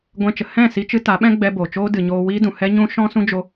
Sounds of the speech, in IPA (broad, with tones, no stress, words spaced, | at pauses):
ɡʷɛ̃˦t͡ʃə˨ hɛ̃˦˨si˧ t͡ʃɨ˧ ta˨˦ɓɛ̃˦ɡ͡bɛ˧ bo˨ t͡ʃoː˦dɨ˨ ɲoː˧wiː˦dũ˨ hɛ˦ ɲũ˦ ʃɔ̃˦sũ˦d͡ʒo˧